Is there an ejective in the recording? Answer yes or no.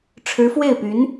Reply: no